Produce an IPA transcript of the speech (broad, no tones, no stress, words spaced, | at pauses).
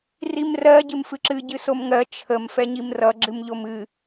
rimrɜ ɟɨmfɨǁɨ ɟɨsomŋɜ t͡ʃʰəm fɛɲimrʌ ɡ͡ǁɨmʎomɨ